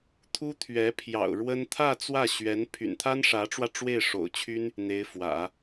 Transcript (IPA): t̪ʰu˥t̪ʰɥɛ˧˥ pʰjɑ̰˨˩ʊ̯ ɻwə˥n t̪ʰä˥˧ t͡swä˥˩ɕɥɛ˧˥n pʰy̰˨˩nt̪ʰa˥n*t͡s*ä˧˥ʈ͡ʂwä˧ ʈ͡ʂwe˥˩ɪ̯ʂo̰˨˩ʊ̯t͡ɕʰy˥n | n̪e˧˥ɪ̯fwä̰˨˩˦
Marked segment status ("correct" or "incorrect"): incorrect